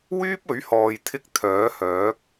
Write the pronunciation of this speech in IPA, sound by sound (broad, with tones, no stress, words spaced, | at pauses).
wyː˥p̚ɵ˨˥ɥhɔː˨jt̪ʰɪ˧k̚ t̪ʰœː˨˥hœː˨˥k̚